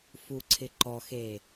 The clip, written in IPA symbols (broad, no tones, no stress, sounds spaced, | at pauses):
f u ǀʰ ɪ ǃ ɔ x eː